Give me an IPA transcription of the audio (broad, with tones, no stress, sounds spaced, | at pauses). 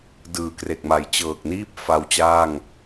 d ɯː˨˩ k r e˨˩ k̚ m a˨˩ j t͡ɕ ɤː˨˩ k̚ n iː˥˩ p̚ f a˧ w t͡ɕ aː˥˩ ŋ